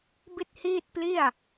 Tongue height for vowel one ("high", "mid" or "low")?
high